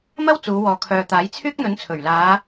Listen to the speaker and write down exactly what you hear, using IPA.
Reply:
m ɐ˥ w t͡s uː˨˧ w ɔː˨ kʰ œː˨ t̪ aː˨˥ j t͡sʰ yː˥ k̚ n̪ ɵ˨˥ n t͡sʰ ɵ˨˩ ɥ l aː˨˧

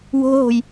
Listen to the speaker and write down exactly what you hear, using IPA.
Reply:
w o̤ ɦ o̤ j

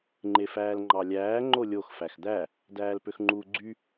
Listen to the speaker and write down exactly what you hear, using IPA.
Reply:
ŋ͡ǃ e f æː l ŋ͡ǃ ɑ lʲ æː ŋ͡ǃ o lʲ o x f æ x d̪ æ | d æː l p ø x ŋ͡ǃ uː ɡ͡ǀ y

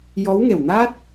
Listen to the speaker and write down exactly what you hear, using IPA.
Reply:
j ɔ˧˥ w ŋ e˨˩ w n a˦˥ t̚

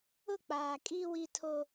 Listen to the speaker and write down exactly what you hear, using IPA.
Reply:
ʊ˦˨ k͡p aː˨ kʼ i˦ w i˦ tʰ o˦

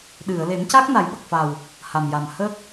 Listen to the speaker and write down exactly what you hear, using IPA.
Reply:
ɗ ɨ˨˩˨ ə̯ l e˨˩˦ m c a˦˥ k̚ n a˨˩˦ j ɓ ə˨˩ k̚ f a˨˩ w | h a˨˩ m j a˨˩ m h ə˦˥ k̚

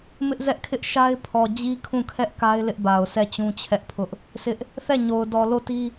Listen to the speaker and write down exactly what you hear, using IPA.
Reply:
m ɪ˦ ʔ z ɛ˦ ʔ kʰ ɪ˦ ʔ ʃ a˦ ɪ̯ pʰ ɔ˨ d͡ʑ i˦ kʰ ũ˦˨ kʰ ɛ˦ ʔ k a˦ ɪ̯ l ɪ˦ ʔ b a˨ ʊ̯ sʰ ɛ˦˨ t͡ɕ ũ˦ t͡ɕʰ ɛ˦ ʔ pʰ ʊ˦ ʔ | sʰ ɪ˦ ʔ | θ ɛ˦˨ ɲ o˨ ʊ̯ d ɔ˨ l o˦˨ t i˦

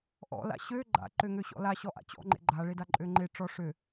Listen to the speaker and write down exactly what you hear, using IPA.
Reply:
ʔ ɔ̰ l a̰ ɕ ø ɡ͡ǃ a̰ ǃ ø ŋ ø ɕ ɔ̰ l a ɕ ɔ ʔ a̰ t͡ɕ ɔ̰ ŋ͡ǃ ḛ ɡ͡ǃ a ɭ e d a ǃʼ ø ŋ͡ǃ e ʈ͡ʂ ɔ ʂ ø

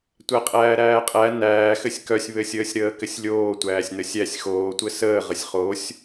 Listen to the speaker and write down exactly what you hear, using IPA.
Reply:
tʷ æ qʼ æː ɾ æː qʼ æ n æː x ɘ sʲ k œ sʲ β ɘ sʲ əː sʲ ɾ əː k ɘ sʲ lʲ oː tʷ æː sʲ n ə sʲ æ sʲ x oː tʷ ɘ s əː ʁ ə sʲ χ o sʲ

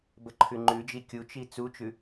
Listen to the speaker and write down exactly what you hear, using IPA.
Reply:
b ə ǃʰ ʉ ŋ͡ǃ ʉ d͡ʒ i kʲ u t͡ʃ i t͡s u t͡ʃ ʉ

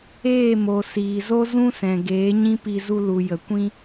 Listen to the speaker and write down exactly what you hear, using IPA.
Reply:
eː˦˨ m o˨ s iː˨ z o˦ z ũ˦ s ɛ̃˨ ɡ eː˨˦ ɲ ĩ˦ p i˧ z u˧ l u˨ j ə˨ kʷ ĩ˦

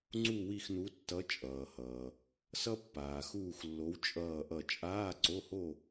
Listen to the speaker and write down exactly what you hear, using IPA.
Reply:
ŋ͡ǀ u˥˧ w i˥˧ x n u˧˥ tː ʌ˧˥ t͡ʃʼ ʌː˨ h ʌː˨ | s ʌ˥ pː aː˨ x uː˥˧ x lː o˧˥ w t͡ʃʼ ʌː˥˧ ʔ ʌ˥˧ t͡ʃʼ aː˧˥˧ ǀ o˧˥˧ h o˥˧

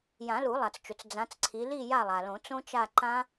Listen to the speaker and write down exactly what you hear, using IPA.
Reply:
j ã˨˩˦ l u˨˩˦ lˠ a˩ t͡s t͡ʃ ʊ˩ t͡s d͡z ã˨˦ t͡s ǀʰ i˨˦ l i˦˨ j a˦˨ lˠ a˩ l õ˨˩˦ t͡s õ˦˥ t͡ʃ a˦˨ ǃ ã˦˥

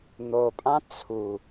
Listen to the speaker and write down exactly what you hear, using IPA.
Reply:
n̪ o pʼ ã t͡sʰ u

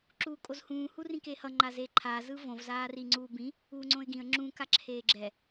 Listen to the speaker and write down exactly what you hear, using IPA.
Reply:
ǁ uː kʼ o z h ũː h u r ĩ k e h ʌ ŋ͡ǃ a z eː ǃʰ aː z ɯ v õ v z aː r i ŋ͡ǀ uː b ĩ | uː ŋ͡ǀ õ ɪ̯ ɡ ĩ ə̯ ŋ͡ǁ ũ k a ǁʰ eː ɡ͡ǁ ɛ

